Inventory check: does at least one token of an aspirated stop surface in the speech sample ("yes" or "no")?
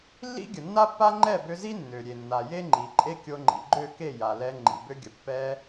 no